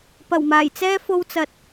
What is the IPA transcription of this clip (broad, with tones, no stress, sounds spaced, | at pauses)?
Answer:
p ɐ˨˩ w m aː˨˩ j t͡s ɛː˥ f o˧ w t͡s ɐ˨ t̚